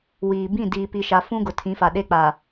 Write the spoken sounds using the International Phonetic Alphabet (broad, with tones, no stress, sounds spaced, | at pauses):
w iː˨ b ĩ˦˨ d iː˨ p i˨ ʃ a˨ f ũ˦ ɡ ʊ˨ tʰ ĩ˨˦ f a˨ ɗ e˦ k͡p a˨